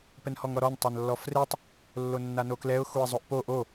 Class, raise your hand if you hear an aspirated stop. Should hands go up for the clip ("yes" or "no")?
no